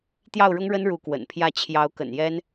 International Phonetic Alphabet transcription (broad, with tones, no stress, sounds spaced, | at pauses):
t̪ j ɑ˥˩ ʊ̯ ɻ ʊ˥ ŋ ɻ ə˥ n ɻ u˧˥ k w ə̰˨˩ n pʰ j ä˥˩ t͡ɕʰ j ɑ˧˥ ʊ̯ k ə̰˨˩ n j ɛ˥ n